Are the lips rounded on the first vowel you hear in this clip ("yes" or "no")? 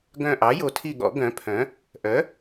yes